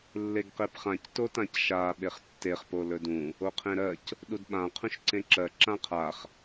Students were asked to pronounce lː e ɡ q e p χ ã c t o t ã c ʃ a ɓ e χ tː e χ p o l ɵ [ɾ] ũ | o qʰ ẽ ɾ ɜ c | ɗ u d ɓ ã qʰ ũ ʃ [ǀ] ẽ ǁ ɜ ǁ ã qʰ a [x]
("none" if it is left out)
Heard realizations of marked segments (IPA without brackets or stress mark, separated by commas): d, ǀ, χ